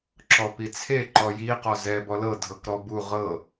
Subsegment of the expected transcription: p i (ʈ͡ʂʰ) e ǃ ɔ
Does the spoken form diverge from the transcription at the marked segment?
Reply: yes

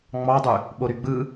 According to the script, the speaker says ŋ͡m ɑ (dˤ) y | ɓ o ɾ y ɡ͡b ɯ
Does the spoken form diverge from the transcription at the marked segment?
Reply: no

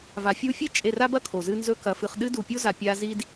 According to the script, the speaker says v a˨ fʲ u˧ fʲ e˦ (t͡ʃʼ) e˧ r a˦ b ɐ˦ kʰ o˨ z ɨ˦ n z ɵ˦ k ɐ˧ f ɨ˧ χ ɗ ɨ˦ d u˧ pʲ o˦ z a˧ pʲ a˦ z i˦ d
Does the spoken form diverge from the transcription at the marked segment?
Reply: no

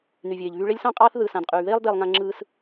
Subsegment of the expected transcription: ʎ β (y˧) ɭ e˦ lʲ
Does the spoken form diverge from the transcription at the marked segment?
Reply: no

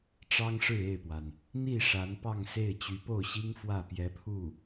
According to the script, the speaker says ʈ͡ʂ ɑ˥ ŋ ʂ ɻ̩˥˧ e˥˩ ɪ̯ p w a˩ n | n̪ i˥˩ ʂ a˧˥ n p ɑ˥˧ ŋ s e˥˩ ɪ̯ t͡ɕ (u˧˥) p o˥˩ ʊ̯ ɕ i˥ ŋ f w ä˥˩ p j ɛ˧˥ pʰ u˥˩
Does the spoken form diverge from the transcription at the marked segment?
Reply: yes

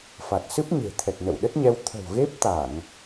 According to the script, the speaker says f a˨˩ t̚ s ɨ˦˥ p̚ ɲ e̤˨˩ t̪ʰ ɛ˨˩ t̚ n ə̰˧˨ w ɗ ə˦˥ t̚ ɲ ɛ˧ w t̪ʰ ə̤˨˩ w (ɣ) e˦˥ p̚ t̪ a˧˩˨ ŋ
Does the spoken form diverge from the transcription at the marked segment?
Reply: no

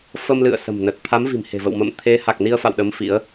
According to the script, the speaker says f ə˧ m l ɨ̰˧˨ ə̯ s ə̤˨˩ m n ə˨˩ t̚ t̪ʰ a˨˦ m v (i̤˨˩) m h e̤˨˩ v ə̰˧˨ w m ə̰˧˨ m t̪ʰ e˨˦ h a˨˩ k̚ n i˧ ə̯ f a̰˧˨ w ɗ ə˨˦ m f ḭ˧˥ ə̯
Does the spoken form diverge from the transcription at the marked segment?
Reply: no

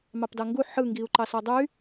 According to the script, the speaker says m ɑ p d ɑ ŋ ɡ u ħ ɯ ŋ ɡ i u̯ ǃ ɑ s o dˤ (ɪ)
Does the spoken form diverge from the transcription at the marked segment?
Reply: yes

